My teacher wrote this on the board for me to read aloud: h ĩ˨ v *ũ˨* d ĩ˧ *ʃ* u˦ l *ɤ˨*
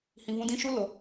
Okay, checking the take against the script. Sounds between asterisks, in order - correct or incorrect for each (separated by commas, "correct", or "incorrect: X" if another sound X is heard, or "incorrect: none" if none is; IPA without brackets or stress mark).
incorrect: ũ˧, correct, incorrect: o˨